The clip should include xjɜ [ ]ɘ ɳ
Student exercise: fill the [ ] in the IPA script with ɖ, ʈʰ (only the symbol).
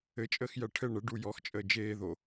ʈʰ